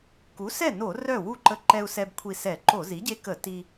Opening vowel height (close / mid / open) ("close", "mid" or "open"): close